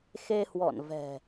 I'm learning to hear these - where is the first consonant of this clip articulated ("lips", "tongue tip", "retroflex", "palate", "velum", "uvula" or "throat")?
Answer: velum